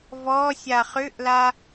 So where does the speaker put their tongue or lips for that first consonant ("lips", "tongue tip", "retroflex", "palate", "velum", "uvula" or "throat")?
lips